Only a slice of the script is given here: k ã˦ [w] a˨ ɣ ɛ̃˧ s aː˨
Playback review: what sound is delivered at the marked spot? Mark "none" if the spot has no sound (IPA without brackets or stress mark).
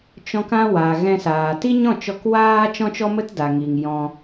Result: w